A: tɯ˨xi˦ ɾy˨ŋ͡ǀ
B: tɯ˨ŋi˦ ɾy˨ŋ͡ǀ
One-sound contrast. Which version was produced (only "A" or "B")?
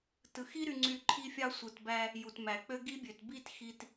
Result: A